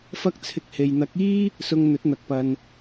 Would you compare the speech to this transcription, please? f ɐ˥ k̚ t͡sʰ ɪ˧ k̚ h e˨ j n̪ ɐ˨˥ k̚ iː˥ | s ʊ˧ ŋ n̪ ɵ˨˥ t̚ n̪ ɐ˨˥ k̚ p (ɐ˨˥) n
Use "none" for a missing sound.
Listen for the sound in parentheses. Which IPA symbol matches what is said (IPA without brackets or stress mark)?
ɐ˧